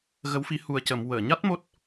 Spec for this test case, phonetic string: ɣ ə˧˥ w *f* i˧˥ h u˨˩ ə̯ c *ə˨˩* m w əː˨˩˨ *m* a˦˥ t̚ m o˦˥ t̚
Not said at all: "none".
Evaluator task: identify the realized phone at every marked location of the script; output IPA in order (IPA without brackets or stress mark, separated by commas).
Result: f, ə˨˩˨, ɲ